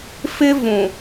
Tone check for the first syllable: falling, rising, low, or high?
high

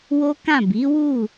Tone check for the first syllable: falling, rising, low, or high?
high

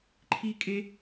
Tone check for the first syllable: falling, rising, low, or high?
high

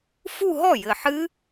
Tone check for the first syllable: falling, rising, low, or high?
falling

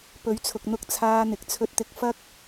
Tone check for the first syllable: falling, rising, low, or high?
rising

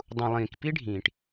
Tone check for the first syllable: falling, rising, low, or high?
low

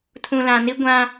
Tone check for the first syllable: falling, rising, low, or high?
low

